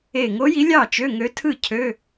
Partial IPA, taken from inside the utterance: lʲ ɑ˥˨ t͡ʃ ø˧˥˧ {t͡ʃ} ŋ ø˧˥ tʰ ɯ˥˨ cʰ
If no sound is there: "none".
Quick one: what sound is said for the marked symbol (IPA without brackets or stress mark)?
none